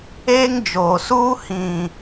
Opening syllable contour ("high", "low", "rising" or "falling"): high